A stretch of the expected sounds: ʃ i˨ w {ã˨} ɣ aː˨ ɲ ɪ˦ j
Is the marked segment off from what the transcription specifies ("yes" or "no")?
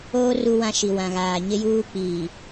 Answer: no